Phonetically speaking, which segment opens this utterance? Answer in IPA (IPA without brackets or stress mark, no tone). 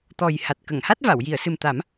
t̪